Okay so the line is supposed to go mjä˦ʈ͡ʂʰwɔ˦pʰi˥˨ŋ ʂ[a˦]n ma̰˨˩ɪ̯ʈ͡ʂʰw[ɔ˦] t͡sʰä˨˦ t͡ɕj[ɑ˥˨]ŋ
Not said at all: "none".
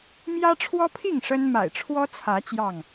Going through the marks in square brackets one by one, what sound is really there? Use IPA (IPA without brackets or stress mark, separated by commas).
ə˦, ɔ˦, ɑ˥˨